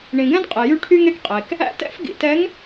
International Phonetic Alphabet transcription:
ɳĩ˨ɡɛ̃˦dqʼe˨ jy˦ ʈʰy˦ŋe˦kqʼe˨k | æ̰˦tɛ̰˦fɡḭ˨tɛ˨˦ŋ

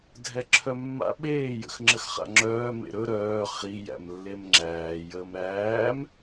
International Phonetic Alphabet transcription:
dʱɛǁʰœmːa̰ ɓeː jə̰xŋ͡ǁəxχa̰ŋ͡ǁœː mḛɾɵ ɾœː χi jæ̰mlːemŋ͡ǁæː jəːmɾæːm

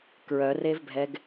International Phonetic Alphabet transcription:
kɹœrevbʱɛɡ

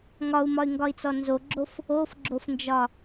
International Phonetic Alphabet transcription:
ŋɒu̯mɒy̯ŋɡɒi̯t͡sɔ nzoɡ͡ǁof | ofɡ͡ǁofnd͡ʒɒ

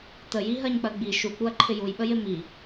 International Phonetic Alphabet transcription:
təji ɦɜɲk͡pɜɡ͡bi ʃuk͡puɐ̯ ǃʰɪjujɓəjɪ mi

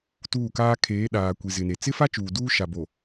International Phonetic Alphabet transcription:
tuː˦˨kaː˦ kʰeː˨˦ɗaː˨kʷi˨ zɪ˨ne˨ t͡sɪ˦fa˦ t͡ʃuː˨duː˦ ʃa˨bo˨

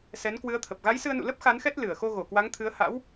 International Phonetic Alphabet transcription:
sɛ˨˦nkwɨ˨˦ə̯t̪ʰə˨˩p̚ ɣa˨˦jsɨ˧ə̯nṵ˧˨ lə˦˥p̚ xa˨˦nxɛ˦˥t̚ lɨ˧˩ə̯ xo˧ɣo˧˩kwa˨˦ŋt̪ʰɨ˨˦ə̯ ha̰˧˥w

